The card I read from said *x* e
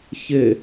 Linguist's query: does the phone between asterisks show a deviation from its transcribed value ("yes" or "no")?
yes